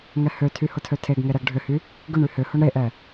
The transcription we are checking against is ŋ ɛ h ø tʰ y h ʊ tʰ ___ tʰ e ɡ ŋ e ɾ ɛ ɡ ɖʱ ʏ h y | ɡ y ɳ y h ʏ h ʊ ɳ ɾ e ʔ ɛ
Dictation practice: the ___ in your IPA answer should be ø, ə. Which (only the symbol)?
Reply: ø